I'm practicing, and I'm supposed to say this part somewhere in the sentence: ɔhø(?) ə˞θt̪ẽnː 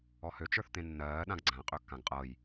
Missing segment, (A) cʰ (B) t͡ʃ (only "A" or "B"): B